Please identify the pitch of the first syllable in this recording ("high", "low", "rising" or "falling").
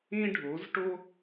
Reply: high